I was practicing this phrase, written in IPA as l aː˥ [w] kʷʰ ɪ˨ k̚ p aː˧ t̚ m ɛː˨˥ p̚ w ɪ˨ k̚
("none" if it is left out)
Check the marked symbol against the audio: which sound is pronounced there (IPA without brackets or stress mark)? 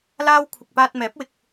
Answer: w